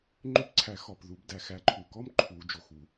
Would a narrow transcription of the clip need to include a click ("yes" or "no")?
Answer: yes